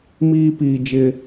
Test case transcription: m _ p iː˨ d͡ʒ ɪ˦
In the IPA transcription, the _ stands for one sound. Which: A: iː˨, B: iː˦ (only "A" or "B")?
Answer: B